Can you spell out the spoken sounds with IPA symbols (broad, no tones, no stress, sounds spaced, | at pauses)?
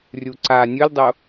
rʲ u ǀ a nʲ ɯ lʲ dˤ o